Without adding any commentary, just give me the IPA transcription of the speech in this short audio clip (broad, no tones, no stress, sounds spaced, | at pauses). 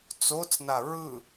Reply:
t͡s o t͡s n a ɹ ɯ